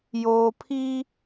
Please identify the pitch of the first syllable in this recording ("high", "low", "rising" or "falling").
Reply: low